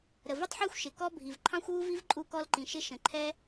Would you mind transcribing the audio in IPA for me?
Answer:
ɾə˩vu˥tˤħə˞˥xʷ ʃɪ˩ kɔ˥bʱi˩v ǃʰɑ̃˥xʷwu˥vi˥v ǃʼu˥kɔ˥lǃĩ˩ ʃɪ˥ ʃə̃˩ǃʰɛ˥

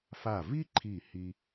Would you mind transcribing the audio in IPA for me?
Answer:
fa˧˩vi˥ǃʰi˧˩ hi˥

